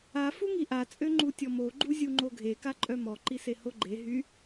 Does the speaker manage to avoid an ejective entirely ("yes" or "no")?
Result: no